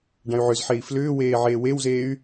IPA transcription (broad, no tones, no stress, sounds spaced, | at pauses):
ɖ ã y̯ ʕ ʏ z ħ e i̯ f l ʏː w eː ʕ eː w e w z eː y̯